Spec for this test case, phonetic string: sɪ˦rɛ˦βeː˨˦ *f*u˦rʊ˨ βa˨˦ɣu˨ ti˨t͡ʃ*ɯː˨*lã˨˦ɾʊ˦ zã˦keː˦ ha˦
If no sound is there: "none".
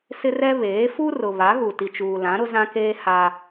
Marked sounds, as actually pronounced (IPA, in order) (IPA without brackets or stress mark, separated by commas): f, uː˨